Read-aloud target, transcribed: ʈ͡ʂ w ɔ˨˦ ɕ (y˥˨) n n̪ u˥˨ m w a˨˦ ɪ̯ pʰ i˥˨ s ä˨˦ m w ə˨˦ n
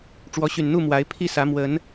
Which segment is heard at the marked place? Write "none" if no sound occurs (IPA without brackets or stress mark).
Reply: y˨˩